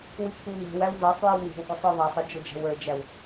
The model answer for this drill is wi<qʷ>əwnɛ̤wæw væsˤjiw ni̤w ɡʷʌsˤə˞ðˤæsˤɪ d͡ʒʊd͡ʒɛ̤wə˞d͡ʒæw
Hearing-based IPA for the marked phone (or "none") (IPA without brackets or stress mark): kʷʰ